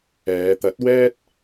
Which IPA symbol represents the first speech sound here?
ɛː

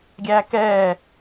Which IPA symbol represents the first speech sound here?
ɡʲ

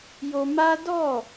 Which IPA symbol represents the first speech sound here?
j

